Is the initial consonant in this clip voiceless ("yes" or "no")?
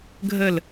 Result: no